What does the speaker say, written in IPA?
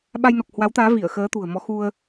ɓ a˧ j n o˨˩ k̚ h w a˨˦ w t̪ aː˨˦ v i˧˩ ə̯ x əː˨˦ t̪ ṳ˨˩ ə̯ m ɔ˨˦ x u˧ ə̯

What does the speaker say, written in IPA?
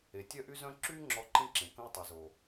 e˨ tʲ œ˦ ʔ y˦ z œ̃˦ ǁ yː˦ ŋ͡ǁ ɔ˧ ǃ ĩ˦ ǁ ẽ˨ k ə̃˦ w tˤ e˨ z o˨

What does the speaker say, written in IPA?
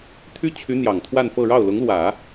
t̪ʰ y˥ t͡ɕʰ y˧˥ n̪ j ɑ˨˩ ŋ t̪ʰ w a˥˧ n f ɤ˥˧ ɻ ɑ˥˩ ʊ̯ l ʊ˧˥ ŋ l w ä˨˩˦

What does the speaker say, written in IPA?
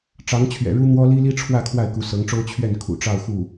ʈ͡ʂ ɑ˧˥ ŋ t͡ɕʰ ɥ ɛ̰˨˩ ɻ u˥ n̪ w ɔ˥ l i˥ l i˥ ʈ͡ʂʰ w ä˥˧ kʰ w a˥˩ ɪ̯ k u˧˥ s ɤ˧˥ ŋ ʈ͡ʂ o˥ ʊ̯ t͡ɕʰ ɥ ɛ˥˩ n kʰ ṵ˨˩ ʈ͡ʂ ɑ˥˧ ʊ̯ x u˥˩

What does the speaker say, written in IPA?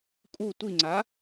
kʼ u tʷ i ŋ͡ǀ a

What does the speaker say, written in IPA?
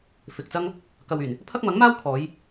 f ɪ˨ k̚ t͡s ɐ˥ ŋ | k ɐ˨ w yː˨˩ n | pʰ ɐ˥ k̚ m ɐ˨˥ ŋ m aː˥ w kʰ ɔː˨˧ j

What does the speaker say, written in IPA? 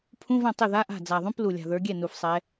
pʰ ũ˧˥˧ v ɛ̃˥˩ tˤ ɪ˥˩ ð a˧˥˧ ʔ a̤˥˩ d͡z a˨˩ ðˤ ũ˧˥˧ p l u˨˩ lʲ a̤˨˩ ð ə˞˨˦ ɡʲ ɛ˥˩ n u˨˩ f sˤ ɛ˨˦

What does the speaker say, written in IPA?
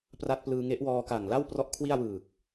p r a˦˥ t̚ p l ɯː˧ ŋ e˦˥ ʔ w ɔː˧ k a˨˩ ŋ l a˥˩ w p r ɔ˦˥ ʔ kʰ w i˥˩ a̯ w ɯː˨˩ k̚

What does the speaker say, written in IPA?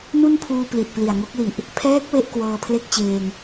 n u˥˩ n pʰ uː˧ p l i˨˩ t̚ p l i˨˩ a̯ ŋ o˦˥ k̚ l i˨˩ ʔ | pʰ ɛː˦˥ k̚ w e˥˩ ʔ k w ɤː˧ pʰ l e˥˩ k̚ t͡ɕ eː˧ ŋ

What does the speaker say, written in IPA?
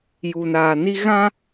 j u˨ n aː˨ n i˦ ɣ ã˦

